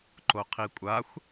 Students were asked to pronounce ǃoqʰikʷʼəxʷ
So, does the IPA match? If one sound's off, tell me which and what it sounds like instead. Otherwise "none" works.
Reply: ə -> a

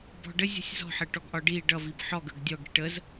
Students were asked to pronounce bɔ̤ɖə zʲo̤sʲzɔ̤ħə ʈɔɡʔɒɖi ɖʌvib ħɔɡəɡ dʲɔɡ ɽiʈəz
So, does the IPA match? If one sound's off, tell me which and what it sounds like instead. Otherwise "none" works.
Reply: o̤ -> ɔ̤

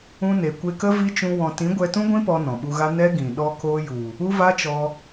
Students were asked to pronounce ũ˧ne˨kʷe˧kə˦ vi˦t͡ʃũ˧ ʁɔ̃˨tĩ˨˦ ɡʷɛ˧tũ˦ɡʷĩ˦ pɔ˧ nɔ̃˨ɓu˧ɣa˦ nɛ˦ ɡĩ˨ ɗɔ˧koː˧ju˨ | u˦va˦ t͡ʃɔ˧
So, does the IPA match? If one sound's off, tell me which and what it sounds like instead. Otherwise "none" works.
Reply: ʁ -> w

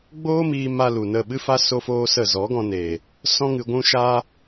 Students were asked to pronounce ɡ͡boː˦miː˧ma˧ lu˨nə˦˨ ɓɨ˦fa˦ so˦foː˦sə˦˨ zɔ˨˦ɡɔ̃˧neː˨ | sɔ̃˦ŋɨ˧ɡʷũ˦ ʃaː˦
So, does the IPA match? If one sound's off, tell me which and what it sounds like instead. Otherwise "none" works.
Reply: none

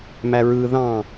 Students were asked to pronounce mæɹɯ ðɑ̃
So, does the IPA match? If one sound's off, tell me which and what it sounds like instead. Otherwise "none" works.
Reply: none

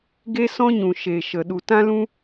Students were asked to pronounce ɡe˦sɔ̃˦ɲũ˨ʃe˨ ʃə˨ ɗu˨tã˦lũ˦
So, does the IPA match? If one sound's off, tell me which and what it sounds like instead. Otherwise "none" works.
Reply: none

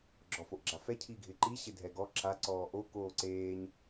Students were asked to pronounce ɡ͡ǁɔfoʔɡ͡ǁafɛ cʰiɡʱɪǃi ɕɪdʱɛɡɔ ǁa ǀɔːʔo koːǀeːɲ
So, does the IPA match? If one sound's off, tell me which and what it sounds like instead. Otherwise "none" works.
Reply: none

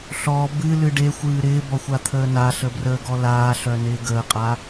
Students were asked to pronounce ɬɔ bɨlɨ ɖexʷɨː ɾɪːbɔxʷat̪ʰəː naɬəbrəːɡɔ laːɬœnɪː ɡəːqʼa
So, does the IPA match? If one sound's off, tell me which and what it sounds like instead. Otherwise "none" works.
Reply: none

